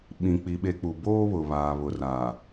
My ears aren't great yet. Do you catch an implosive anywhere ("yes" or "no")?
yes